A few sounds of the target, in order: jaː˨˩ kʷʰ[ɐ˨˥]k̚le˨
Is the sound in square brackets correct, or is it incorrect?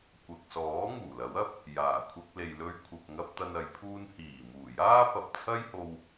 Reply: incorrect: ɐ˧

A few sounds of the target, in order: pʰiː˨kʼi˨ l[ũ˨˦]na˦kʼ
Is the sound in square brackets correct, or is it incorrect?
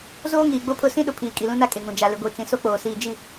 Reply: incorrect: ũ˦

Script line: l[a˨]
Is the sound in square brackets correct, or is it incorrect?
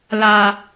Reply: correct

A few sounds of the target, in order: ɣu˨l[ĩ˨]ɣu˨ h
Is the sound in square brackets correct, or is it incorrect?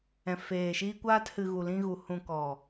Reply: incorrect: ĩ˧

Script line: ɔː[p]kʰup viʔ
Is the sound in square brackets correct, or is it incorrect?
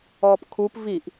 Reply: correct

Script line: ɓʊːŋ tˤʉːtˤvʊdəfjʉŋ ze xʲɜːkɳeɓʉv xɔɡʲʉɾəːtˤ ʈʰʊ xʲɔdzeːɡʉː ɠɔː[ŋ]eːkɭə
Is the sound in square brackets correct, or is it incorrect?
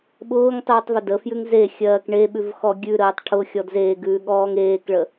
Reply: correct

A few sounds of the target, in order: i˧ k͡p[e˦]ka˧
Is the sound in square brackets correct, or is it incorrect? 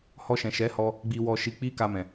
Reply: incorrect: i˦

